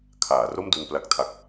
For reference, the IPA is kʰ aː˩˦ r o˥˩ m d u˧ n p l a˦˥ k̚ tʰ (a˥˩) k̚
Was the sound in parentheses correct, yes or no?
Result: no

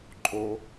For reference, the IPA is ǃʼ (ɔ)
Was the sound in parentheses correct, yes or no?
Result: no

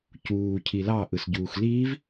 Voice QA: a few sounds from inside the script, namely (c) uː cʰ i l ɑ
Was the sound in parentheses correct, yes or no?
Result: yes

